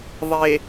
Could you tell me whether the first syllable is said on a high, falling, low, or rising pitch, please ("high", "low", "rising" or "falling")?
low